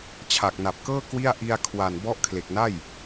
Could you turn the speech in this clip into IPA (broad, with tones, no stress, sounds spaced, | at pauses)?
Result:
t͡ɕʰ a˨˩ k̚ n a˨˩ p̚ k ɤː˥˩ k w i˥˩ a̯ ʔ i˧ a̯ kʰ w a˨˩ n b ɔ˦˥ ʔ kʰ l e˨˩ k̚ n a˥˩ j